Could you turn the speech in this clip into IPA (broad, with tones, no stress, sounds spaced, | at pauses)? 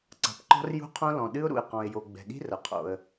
ǀ a̤˩ p ǃ ɔ̤˥ r j ṳ˥ qʰ õ˥ l ɔ̃˩ ɗ ɨ˥ ʊ̯ ɾ ṵ˩ ɪ̯ q ɔ̃˩ ɪ̯ j o˩ ɡ͡b ɛ̤˩ ɗ i̤˥ r ɐ˩ qʰ o̰˩ ə̯